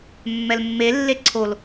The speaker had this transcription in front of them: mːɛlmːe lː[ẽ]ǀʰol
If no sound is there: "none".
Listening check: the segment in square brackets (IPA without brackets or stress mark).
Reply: e